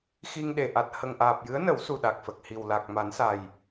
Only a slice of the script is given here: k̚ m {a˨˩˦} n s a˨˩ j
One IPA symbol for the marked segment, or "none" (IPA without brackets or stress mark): a˨˩˦